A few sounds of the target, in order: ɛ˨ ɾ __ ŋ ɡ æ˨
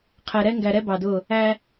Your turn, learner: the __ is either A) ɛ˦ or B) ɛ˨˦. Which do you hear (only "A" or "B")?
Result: A